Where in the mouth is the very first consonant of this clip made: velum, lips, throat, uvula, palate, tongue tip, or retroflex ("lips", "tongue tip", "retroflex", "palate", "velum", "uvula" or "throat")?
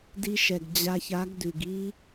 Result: tongue tip